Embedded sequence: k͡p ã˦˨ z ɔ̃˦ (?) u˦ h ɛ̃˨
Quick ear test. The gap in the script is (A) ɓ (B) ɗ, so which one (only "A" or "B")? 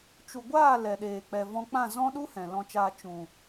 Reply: B